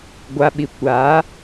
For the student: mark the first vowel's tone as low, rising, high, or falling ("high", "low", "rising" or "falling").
low